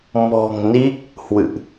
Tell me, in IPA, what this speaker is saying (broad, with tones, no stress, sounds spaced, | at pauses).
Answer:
m ɔ̤˨˩ ŋ n i˦˥ k̚ | h w ɨ̰˧˨ ʔ